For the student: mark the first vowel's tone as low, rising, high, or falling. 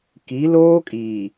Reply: rising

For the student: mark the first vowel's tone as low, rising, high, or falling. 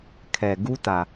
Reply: low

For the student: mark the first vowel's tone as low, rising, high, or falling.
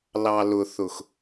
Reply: low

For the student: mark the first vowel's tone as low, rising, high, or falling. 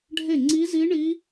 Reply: falling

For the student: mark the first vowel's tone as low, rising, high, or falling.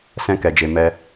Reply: high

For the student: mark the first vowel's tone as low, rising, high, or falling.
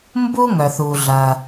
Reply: high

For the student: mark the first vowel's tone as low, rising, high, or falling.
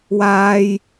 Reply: high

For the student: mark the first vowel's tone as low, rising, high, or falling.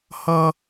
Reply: high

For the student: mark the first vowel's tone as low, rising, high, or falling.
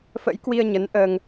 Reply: rising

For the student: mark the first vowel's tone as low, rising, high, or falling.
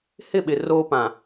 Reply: falling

